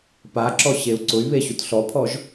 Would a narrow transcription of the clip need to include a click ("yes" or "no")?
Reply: yes